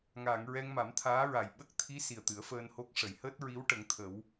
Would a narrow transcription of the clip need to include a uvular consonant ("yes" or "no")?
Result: no